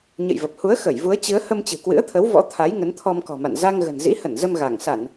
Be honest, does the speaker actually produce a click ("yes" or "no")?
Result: no